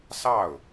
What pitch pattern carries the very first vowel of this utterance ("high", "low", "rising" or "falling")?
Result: falling